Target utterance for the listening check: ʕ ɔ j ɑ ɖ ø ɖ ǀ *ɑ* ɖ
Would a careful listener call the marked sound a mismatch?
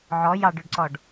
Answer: yes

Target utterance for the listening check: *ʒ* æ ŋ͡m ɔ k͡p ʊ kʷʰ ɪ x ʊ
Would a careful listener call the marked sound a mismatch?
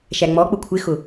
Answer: yes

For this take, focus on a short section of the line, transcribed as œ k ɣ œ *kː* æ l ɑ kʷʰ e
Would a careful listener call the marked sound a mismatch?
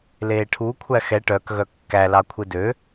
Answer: no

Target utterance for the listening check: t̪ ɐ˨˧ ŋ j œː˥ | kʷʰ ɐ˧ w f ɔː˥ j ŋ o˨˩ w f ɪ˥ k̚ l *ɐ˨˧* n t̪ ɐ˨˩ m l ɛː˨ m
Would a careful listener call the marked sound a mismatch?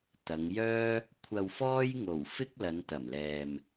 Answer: no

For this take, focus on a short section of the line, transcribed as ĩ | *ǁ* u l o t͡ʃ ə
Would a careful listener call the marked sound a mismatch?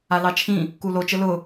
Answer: yes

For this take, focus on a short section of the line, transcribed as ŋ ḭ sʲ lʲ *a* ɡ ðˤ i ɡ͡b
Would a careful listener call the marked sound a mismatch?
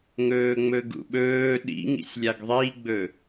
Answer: no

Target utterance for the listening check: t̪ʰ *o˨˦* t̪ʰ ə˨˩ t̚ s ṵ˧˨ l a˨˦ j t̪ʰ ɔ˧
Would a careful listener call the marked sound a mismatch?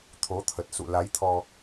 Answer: no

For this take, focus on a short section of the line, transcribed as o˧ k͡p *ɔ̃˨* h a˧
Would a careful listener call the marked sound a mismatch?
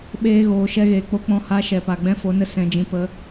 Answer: yes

